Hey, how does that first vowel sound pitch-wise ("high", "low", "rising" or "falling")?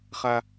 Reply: low